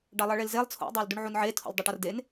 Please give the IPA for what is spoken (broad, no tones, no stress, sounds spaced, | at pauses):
ɖ ɑ lˠ ʌ ɭ e l z e lˠ t͡sʰ o̰ dˤ ɑ l d u ɳ ʕ u n ʕ e tʰ o̰ lʲ dˤ ø ʈ ʌ r d e n